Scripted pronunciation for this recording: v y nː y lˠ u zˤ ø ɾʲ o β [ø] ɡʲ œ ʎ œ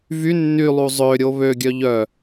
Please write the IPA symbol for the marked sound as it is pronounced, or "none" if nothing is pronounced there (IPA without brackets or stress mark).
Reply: ø